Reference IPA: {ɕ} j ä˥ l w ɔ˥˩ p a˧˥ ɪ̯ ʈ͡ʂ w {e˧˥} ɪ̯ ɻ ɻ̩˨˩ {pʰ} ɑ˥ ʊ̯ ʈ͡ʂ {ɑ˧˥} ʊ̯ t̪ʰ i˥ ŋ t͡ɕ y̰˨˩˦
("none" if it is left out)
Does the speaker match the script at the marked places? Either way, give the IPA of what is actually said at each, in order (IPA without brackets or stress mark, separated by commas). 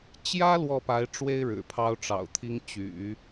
t͡ɕ, e˥, pʰ, ɑ̰˨˩